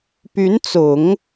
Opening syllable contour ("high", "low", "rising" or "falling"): rising